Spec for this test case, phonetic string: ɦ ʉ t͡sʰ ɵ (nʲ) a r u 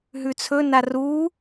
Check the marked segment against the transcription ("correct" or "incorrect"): incorrect